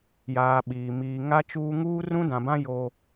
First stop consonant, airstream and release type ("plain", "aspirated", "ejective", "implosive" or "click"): implosive